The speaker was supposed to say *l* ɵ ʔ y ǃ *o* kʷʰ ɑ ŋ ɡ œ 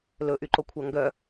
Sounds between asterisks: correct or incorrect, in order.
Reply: correct, correct

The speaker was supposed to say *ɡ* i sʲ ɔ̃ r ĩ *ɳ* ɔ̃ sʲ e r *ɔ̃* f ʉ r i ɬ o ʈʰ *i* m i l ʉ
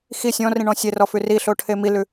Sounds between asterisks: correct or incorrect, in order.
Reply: incorrect: x, correct, incorrect: ɔ, incorrect: e

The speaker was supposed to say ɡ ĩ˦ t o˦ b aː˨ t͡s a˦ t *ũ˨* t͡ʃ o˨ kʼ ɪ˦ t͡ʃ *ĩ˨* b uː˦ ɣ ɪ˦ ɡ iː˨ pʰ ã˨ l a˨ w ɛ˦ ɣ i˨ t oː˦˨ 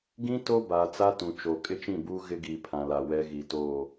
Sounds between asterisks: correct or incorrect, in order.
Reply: correct, incorrect: ĩ˦˨

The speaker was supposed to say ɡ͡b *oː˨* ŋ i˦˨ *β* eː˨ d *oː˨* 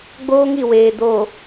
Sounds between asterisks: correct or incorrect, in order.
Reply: incorrect: oː˦, incorrect: w, correct

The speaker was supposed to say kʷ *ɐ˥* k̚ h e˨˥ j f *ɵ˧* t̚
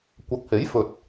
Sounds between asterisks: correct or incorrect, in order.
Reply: incorrect: ɐ˨˥, correct

